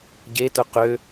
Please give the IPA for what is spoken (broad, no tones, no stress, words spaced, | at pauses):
ɟetʊ qø